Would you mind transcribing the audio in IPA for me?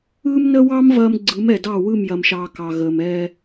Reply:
ɯː˦ m n ə˦ w ɑ˦ m v ɐː˨ m ɡ͡ǀ ɯ˨˦ m ɛ˨ d ɑ˦˨ w ɯ˦˨ m j ɐ˨ m ʃ ɑː˨ k ɑ˨ ɣ əː˨ m ɛ˦

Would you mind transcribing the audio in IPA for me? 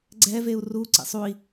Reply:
ɡ͡ǀ ɛ v e u̯ r u ǀ ḛ sˤ u i̯

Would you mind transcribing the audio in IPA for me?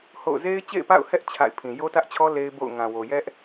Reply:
h o̰˦˨ ʊ̯ z e˦ ɪ̯ t͡ɕ ḛ˦˨ ɪ̯ p a̰˦˨ ʊ̯ h ɛ˦ ʔ t͡ɕʰ a̰˦˨ ɪ̯ pʰ ĩ˨ j o˦ t ä˦ ʔ t͡ɕʰ ɔ˦ l e˦ ɪ̯ b o̰˦˨ ʊ̯ ŋ ã˨ w o˨ j ɛ˦ ʔ

